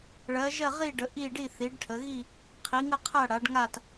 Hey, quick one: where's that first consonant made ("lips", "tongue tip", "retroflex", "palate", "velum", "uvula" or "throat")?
retroflex